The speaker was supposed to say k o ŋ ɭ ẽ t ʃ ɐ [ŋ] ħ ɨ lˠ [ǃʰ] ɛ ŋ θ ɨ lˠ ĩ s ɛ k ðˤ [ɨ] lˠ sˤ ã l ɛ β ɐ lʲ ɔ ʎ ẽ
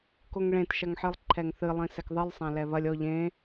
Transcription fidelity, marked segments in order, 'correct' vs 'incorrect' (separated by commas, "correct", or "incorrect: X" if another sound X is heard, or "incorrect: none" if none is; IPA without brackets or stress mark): correct, correct, correct